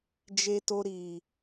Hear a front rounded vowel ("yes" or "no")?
no